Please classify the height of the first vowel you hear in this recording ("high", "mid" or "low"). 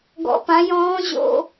mid